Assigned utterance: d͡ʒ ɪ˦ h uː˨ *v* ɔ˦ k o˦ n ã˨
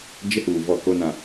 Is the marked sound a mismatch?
no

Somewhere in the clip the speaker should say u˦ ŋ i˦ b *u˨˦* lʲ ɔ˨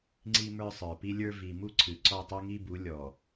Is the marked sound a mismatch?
no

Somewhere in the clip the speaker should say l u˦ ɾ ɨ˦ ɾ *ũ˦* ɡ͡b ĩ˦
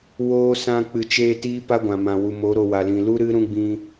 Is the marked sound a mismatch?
no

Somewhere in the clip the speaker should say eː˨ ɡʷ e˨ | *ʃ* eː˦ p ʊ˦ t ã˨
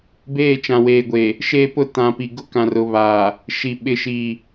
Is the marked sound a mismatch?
no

